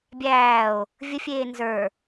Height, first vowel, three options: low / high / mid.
low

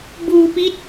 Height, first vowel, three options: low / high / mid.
high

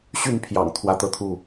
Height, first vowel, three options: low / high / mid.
high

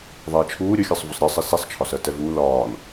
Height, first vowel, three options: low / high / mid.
mid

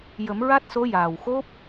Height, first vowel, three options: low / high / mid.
mid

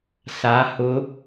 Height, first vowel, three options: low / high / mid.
low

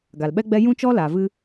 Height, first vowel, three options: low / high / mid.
low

